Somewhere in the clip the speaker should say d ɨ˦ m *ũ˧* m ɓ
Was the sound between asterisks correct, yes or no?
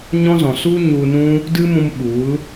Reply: yes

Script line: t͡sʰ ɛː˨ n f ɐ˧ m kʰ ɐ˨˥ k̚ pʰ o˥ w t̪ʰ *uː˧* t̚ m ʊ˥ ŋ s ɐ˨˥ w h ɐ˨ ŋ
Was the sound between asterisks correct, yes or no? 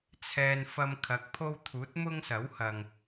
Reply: no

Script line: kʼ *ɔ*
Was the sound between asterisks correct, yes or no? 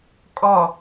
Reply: yes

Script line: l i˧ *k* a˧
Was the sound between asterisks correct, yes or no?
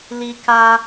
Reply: yes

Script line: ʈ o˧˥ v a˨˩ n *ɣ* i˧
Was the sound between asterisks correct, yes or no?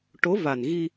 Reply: yes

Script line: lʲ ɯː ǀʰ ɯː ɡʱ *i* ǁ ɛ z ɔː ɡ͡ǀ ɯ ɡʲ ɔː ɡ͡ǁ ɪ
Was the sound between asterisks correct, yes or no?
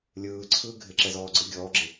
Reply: no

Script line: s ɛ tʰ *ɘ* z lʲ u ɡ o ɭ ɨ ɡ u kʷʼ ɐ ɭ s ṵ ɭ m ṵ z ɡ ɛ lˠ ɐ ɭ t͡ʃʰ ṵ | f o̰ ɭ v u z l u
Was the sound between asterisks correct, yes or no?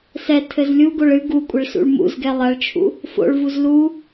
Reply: yes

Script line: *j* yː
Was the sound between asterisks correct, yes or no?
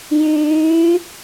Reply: yes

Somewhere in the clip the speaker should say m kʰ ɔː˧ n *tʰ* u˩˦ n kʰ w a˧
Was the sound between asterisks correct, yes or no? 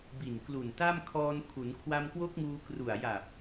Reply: no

